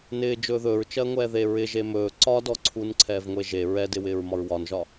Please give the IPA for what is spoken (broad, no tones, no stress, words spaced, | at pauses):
nɪː d͡ʒɵːðɵːɹt͡ʃɜŋʷɛː ðeɹɪʒe mɵː ǀɒdɔǀʰun ǀʰɛːvŋʷeʒe ɹɛdɪwɪːɹ mɒɹwɒnʒɒ